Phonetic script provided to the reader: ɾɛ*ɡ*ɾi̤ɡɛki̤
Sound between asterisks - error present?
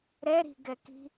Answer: yes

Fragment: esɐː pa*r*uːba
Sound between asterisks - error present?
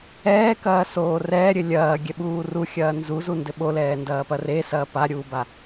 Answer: yes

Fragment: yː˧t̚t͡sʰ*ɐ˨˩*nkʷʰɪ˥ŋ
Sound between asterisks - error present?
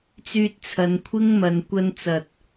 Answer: yes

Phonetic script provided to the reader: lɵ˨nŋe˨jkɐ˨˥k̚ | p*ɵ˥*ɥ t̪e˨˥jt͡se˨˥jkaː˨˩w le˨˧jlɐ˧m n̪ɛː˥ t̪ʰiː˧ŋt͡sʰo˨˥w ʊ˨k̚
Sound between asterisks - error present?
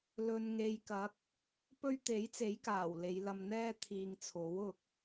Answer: no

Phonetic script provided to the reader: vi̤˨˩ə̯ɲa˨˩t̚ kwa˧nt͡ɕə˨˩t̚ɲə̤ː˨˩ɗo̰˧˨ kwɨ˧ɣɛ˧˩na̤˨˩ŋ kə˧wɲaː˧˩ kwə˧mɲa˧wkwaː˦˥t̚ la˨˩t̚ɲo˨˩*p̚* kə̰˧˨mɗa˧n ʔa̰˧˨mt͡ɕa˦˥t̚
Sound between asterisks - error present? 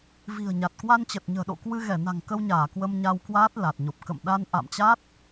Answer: no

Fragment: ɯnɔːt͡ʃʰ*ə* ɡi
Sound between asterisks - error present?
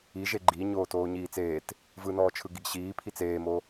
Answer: yes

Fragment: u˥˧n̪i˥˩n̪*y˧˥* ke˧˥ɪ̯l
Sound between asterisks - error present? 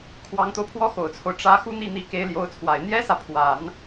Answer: yes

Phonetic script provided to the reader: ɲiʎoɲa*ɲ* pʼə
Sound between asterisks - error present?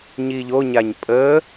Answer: no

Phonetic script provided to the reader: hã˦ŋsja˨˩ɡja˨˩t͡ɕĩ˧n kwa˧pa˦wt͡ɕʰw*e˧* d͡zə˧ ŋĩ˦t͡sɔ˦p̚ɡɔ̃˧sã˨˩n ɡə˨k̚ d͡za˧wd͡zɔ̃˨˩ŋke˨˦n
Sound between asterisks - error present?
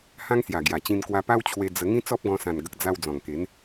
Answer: no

